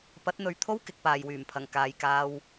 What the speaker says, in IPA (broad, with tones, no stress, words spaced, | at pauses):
pɐ˨˥t̚n̪ɵ˨ɥt̪ʰo˥w kɪ˧k̚paː˨jwyː˨˩mpʰɐ˨˩ŋ kaː˨jkaː˧w